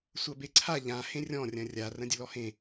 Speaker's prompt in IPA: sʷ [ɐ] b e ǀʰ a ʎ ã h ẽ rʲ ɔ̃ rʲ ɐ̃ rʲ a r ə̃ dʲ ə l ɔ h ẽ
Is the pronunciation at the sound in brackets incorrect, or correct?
correct